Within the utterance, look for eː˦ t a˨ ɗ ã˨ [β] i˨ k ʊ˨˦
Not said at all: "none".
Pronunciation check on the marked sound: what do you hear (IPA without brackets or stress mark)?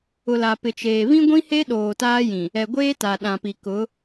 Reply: p